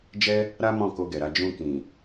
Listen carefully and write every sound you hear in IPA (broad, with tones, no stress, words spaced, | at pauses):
d͡ʒɛ˦ | ɾa˦mɔ̃˦˨ ko˧ɡɛ˨ɾa˧ d͡ʒũ˧kĩ˨